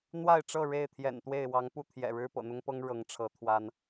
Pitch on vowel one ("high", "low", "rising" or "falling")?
falling